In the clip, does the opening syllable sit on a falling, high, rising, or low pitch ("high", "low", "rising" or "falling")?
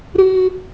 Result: high